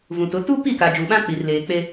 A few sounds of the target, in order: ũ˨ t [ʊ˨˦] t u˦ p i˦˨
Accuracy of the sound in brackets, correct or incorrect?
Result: correct